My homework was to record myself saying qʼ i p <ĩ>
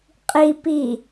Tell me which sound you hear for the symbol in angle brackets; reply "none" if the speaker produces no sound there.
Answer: i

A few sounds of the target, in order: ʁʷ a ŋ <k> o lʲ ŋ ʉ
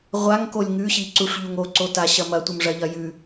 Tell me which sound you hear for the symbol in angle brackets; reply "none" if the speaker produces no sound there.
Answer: k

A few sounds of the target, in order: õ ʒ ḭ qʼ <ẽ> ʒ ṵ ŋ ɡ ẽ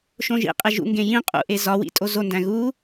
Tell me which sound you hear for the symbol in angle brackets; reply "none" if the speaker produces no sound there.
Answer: e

